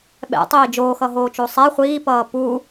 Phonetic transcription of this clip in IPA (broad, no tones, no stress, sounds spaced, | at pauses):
ɓ ɛ̰ tˤ iː d͡ʒ oː x ʌ ɦ oː t͡ʃ o sˤ ɛ χʷ iː p ʌː p u